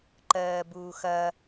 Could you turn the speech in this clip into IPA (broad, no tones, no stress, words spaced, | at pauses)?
ǃɜːbuːxɐ